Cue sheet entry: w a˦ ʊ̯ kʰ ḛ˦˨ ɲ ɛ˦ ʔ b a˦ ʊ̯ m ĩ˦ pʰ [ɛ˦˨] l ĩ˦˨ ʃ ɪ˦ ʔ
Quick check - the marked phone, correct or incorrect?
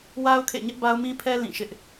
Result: incorrect